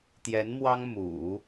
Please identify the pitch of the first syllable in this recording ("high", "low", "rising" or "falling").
rising